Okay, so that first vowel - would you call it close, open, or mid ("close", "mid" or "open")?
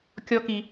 mid